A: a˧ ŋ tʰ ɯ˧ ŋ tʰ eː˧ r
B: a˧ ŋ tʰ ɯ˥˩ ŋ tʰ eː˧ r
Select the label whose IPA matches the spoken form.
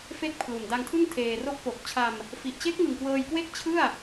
B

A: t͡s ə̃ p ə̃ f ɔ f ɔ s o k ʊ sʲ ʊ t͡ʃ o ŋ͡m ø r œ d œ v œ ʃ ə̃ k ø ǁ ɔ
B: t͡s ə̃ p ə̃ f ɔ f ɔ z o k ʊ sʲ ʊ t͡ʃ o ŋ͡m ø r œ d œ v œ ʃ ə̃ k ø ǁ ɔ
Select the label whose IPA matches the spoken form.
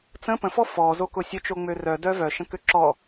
B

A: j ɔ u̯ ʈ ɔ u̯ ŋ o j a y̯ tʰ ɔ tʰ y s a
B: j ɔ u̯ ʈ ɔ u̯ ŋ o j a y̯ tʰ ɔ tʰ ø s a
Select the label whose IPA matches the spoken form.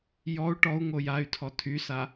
A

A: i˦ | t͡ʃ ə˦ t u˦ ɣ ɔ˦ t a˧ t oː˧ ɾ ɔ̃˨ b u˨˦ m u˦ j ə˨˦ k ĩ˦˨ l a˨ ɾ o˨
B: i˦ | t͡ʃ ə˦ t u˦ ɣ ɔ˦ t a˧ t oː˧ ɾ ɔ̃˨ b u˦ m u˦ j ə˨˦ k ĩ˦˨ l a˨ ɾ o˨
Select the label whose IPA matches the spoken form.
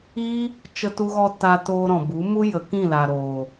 A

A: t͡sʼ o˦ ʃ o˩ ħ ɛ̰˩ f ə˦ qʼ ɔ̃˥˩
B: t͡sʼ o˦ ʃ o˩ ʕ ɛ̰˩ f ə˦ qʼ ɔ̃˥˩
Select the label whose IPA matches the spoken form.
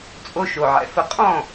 B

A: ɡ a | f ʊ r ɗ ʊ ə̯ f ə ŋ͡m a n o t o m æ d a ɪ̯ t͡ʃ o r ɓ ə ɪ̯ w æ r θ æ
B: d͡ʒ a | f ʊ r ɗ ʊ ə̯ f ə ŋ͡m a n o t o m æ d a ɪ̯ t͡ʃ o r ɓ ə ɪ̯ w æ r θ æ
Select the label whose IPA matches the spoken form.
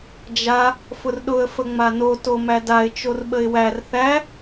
B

